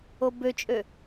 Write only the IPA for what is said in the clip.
o b ø t͡ʃʼ ø

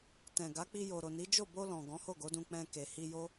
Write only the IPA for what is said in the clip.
t ɛ̃˨ ɡ a˨˦ k͡p i˧ j o˨ ɾ o˨ n i˨˦ d͡ʒ o˦˨ b o˧ l ɔ̃˨ ɡ ɔ̃˨˦ h o˦˨ ɡ o˨˦ d ũ˧ k͡p ɛ̃˧ k e˨ h i˧ j o˦

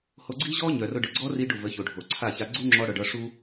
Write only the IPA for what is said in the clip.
h o˧ ɡ͡ǀ i˦ ʑ ɔ˦ ɲ œ˨ r ʊ˧ ɖ ə˨ ɡ͡ǀ ɔ˦ r i˧ ɖ ʊ˨ v ə˨˦ ç o˨ ɖʱ o˨ ǀʰ a˦˨ ç a˧ ɡ͡ǀ u˦ ŋ͡ǁ ɔ˧ ɽ œ˨ ɖ ʌ˧ ʂ u˧

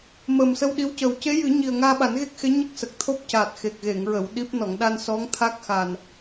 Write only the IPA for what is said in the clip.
m əː˨˩ m s ə˧ w ɗ i˧˥ w c ə˨˩ w c e˧˥ j ɨ˨˩˦ ɲ i˨˩ ə̯ ŋ aː˧ ɓ a˨˩˦ n ɣ e˦˥ k̚ x e˧˥ ɲ ə˦˥ k̚ s ə˨˩ k̚ t̪ʰ o˦˥ p̚ c aː˨˩ t̚ x e˨˩ k̚ ɣ e˨˩˨ ŋ ɹ ə˨˩˨ w ɗ i˦˥ p̚ n ɔ˨˩˨ ŋ ɗ a˧ n s ɔ˧˥ ŋ t̪ʰ a˦˥ k̚ x a˨˩ n

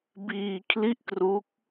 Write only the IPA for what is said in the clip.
b iː˧ kʰ l i˥˩ ʔ k r u˦˥ k̚

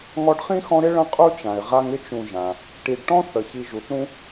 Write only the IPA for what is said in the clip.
ŋ ɔ˦ ɖ χ ĩ˥ x ɔ̃˦ ɾ ɪ˥ ɭ ə̃˥ qʼ u˥ t͡ʃ ã˩ ɪ̯ ʁ a˦ ŋ ɪ˦ t͡ʃ ũ˨ ʒ ã˩ | ʈ i˨ ɖ ʈ ɔ̃˥ θ ə˩ ç i˨ ʒ u˩ θ ɾ ũ˦

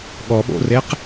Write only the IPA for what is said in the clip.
ɠ ɔ ɓ o̰ r e q

